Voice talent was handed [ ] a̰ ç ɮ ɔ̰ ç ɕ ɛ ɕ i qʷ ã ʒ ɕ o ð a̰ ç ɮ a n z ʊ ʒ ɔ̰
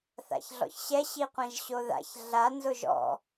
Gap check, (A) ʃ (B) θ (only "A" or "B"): B